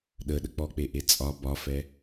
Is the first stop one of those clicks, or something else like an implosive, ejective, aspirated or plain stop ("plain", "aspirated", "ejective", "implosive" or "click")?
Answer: implosive